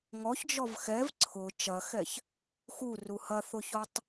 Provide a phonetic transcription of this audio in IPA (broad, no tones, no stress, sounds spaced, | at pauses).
ŋ ɔ ç d͡ʒ ɔ v x ɛ v ǀʰ ʊ t͡ʃ ɐ x ɛ ç | x u r u h ɐ θ ʊ ç ɔ tˤ